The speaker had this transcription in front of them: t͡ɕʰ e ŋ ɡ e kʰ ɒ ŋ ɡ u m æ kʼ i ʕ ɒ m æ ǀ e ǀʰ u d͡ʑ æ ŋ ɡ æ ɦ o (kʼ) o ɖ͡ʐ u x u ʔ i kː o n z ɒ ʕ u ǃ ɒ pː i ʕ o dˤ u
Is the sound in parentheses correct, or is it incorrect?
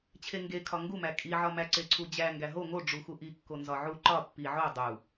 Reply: incorrect: ŋ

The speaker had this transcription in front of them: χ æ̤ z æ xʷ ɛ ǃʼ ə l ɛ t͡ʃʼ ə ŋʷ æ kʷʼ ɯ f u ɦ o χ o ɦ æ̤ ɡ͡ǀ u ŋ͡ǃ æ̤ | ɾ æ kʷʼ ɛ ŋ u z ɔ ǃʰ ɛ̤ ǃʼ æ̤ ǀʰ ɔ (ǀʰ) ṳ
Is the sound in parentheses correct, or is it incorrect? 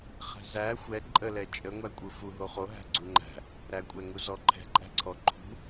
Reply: incorrect: ǃʰ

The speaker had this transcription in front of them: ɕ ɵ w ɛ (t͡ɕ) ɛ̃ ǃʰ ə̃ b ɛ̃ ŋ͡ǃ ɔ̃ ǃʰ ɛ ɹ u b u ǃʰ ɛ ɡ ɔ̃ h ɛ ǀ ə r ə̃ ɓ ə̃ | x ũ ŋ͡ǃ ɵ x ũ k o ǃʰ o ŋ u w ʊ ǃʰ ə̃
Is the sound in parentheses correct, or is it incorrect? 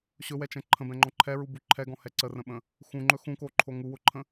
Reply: incorrect: t͡ʃ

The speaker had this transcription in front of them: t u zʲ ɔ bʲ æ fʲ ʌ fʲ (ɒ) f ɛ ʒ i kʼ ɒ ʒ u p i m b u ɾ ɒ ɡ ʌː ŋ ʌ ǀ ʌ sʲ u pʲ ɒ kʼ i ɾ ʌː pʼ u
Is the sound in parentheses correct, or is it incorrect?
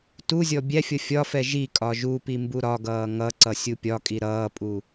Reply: correct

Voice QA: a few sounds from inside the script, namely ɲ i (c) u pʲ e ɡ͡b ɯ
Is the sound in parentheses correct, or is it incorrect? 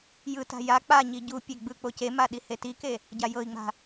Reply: incorrect: ɟ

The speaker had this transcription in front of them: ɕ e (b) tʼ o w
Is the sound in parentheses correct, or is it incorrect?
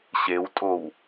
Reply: incorrect: w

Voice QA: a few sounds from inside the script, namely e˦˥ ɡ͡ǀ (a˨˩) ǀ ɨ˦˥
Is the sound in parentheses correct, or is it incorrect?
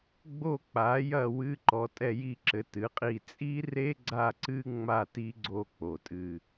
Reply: incorrect: a˦˨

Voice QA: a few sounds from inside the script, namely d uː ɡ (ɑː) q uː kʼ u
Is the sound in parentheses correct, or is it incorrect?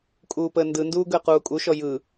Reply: incorrect: əː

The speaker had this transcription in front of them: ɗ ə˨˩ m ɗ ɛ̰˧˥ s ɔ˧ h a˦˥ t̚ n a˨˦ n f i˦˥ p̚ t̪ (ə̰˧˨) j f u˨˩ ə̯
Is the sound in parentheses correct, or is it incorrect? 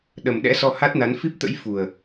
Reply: incorrect: ə̰˧˥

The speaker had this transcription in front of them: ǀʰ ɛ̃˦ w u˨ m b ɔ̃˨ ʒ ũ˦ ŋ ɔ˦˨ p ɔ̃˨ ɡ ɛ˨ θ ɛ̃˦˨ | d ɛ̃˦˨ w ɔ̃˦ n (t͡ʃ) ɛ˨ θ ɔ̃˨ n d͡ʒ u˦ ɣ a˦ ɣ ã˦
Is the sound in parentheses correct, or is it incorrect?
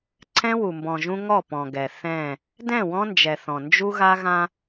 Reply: incorrect: d͡ʒ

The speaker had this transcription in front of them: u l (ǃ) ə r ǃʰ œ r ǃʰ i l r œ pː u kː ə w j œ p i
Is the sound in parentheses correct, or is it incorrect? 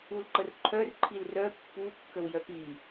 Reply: correct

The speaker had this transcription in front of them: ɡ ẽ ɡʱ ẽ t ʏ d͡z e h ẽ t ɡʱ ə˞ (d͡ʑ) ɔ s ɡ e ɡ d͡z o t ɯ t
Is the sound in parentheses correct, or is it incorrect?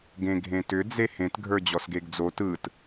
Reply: correct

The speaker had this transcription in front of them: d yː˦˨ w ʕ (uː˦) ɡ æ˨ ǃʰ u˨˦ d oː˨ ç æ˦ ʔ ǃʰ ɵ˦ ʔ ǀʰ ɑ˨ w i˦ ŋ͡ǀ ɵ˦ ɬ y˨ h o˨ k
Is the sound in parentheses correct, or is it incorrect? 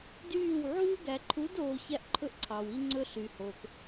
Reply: correct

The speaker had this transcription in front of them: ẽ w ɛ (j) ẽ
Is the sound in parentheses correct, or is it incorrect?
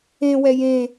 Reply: correct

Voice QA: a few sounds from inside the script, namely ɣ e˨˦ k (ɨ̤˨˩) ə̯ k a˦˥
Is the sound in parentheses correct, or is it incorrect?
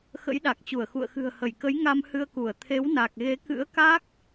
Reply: incorrect: ɨ̰˧˥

